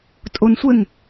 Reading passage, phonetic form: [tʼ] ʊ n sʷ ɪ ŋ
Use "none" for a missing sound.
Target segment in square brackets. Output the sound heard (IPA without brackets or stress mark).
tʼ